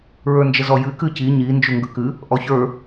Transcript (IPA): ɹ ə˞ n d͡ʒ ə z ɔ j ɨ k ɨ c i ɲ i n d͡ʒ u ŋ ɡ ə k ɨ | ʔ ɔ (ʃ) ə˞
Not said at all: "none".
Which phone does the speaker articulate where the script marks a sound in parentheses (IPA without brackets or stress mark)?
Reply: ç